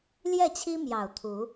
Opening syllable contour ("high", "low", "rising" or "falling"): falling